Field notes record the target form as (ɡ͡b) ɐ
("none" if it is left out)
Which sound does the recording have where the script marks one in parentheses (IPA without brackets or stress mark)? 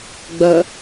ɡ͡b